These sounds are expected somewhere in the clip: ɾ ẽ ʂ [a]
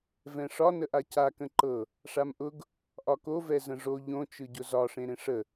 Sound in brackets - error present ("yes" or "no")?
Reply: yes